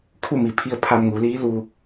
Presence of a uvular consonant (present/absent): absent